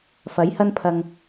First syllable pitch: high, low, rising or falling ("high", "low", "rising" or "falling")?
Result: rising